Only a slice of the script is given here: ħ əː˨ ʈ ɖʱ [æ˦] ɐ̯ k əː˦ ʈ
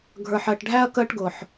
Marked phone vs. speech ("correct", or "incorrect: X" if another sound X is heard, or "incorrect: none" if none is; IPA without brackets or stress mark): correct